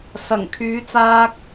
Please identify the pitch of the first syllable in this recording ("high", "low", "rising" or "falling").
low